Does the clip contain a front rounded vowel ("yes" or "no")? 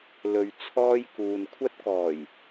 no